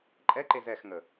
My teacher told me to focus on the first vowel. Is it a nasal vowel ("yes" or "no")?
no